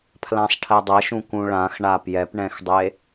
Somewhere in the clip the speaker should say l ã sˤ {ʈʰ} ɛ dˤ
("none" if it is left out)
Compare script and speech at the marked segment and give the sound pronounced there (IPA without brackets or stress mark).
ʈʰ